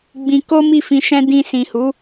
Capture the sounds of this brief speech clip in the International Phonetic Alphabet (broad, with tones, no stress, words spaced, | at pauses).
ɡ͡bĩ˧ko˦ mi˦˨fĩ˧ʃɛ̃˦ dĩ˧ sĩ˨hu˨˦